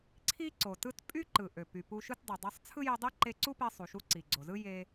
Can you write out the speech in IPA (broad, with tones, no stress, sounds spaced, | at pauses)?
ǀʰ i˥ ǀ o˩ t ɯ˥ t pʼ y˥ ǃ ɯ˩ ʔ ø˩ p y˩ p u˧ ʃ ɯ˥ t dˤ e˩ dˤ ɑ˧ sˤ t͡sʰ ɯ˥ j i˧ dˤ i˥ ǃ e˧ ǀ u˥ p e˧ sˤ u˩ ʃ u˧ ǀ i˩ ɡ͡ǀ o˩ z ɯ˥ j e˧